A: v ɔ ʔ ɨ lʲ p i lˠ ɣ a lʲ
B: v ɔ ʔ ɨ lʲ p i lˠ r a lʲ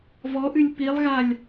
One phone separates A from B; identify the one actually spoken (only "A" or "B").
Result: A